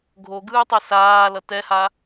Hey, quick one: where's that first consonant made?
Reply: velum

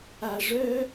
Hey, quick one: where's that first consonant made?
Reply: retroflex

